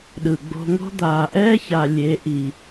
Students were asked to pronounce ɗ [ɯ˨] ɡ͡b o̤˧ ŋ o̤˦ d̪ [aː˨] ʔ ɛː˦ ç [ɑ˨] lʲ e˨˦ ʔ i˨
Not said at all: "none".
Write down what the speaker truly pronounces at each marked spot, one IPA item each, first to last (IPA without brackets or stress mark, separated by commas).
ɯ˨, aː˨, a˨